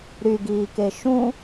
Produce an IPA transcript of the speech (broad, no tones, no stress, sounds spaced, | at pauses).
ɾ y ɡ iː k e ʃ ũ